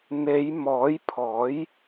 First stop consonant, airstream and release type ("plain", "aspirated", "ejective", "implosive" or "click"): aspirated